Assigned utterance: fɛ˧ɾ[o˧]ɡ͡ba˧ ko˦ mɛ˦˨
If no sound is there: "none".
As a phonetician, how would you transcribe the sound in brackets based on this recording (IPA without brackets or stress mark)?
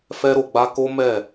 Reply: o˨